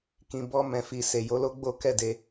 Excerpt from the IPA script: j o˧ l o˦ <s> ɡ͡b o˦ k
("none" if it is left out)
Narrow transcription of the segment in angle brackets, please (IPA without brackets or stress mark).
none